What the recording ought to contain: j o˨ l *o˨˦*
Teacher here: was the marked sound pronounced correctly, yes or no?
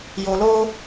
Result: no